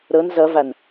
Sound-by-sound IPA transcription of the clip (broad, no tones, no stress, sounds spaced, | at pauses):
ɾ ɤ n z ʌ v a n